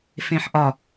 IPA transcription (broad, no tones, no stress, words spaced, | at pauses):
fẽħʔɒ